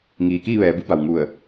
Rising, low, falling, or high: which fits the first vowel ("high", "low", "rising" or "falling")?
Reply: low